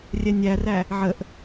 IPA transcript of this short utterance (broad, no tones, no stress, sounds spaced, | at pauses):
rʲ ɛ nʲ æ r æ | ʕ ə ʔ